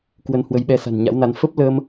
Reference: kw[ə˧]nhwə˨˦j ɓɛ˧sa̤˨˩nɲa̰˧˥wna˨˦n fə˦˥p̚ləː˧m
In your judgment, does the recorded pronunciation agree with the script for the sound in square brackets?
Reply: yes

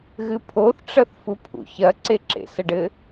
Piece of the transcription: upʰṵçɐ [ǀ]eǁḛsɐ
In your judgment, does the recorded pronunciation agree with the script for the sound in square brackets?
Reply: yes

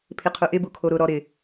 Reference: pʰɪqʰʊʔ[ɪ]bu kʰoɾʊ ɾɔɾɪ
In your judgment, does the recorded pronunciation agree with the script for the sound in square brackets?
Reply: yes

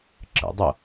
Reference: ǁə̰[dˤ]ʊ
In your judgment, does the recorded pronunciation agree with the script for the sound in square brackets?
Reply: yes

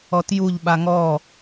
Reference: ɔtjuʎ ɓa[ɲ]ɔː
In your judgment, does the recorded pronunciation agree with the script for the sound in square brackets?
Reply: no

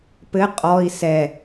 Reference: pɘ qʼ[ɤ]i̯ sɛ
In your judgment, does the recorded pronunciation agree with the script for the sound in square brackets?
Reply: no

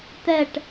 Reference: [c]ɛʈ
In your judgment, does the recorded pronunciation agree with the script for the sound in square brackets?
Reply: no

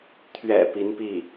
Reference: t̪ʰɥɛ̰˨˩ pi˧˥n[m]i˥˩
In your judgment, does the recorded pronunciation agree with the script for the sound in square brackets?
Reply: no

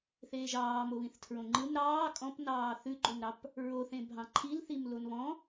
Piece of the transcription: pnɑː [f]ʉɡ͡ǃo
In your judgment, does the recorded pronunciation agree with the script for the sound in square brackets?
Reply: no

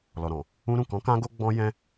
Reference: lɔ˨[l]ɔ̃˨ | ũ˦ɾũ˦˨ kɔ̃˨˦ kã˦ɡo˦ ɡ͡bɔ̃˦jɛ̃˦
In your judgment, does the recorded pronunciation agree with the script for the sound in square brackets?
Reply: no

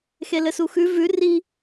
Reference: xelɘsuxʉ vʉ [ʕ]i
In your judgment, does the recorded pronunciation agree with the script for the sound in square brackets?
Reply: no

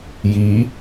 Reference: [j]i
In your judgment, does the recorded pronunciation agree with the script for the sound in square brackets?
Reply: yes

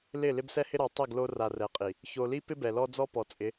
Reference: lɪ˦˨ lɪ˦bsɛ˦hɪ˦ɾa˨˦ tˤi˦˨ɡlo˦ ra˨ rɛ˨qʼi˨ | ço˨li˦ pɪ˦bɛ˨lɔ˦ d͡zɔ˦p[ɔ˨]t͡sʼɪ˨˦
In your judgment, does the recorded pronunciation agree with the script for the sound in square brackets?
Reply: yes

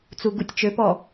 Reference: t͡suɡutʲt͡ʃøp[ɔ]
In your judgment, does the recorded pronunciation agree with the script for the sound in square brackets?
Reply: yes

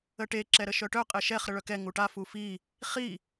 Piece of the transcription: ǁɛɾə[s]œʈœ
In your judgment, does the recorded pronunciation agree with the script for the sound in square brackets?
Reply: no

